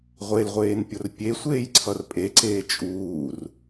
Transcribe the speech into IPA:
ʁʷelʁʷeːnpʲor pʲesʷeːjǀʰʌr pʼeǀeː t͡ʃʼuːr

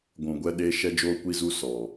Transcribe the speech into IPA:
ɡʷũ˨ɡʷɛ˧ɗe˧ ʃɛ˧d͡ʒoː˧kʷi˧zu˧ sɔ˨

